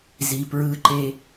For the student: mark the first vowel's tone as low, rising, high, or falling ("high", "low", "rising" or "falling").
low